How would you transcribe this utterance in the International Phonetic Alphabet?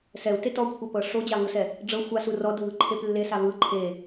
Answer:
s ɛ u̯ t e t ɔ kʷʰ ɛ p ɤ ʂ o d͡ʑ a v ɯ s ɛ | ɖ͡ʐ ɤ xʷ a s u r ɔ dʱ ɯ ǃʰ e p lː e s a v ɯ ǃʰ e

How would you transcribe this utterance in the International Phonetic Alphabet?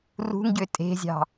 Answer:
r ṳ ŋ ɟ ø tʼ e̤ zʲ ɑ̤

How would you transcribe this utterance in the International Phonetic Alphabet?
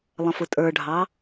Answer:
lˠ ə̃ f ʊ tʼ ə˞ ɖʱ ɑ

